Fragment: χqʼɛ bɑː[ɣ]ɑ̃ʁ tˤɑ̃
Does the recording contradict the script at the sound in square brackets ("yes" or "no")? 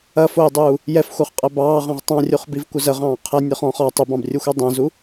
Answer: yes